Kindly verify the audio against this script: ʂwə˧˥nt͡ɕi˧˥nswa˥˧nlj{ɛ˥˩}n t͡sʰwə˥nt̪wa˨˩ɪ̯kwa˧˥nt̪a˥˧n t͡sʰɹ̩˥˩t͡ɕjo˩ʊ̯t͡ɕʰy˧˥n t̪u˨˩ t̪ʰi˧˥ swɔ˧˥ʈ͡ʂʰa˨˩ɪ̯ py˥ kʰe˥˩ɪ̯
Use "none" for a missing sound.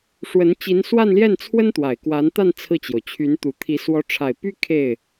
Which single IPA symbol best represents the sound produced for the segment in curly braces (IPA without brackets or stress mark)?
ɛ˥˩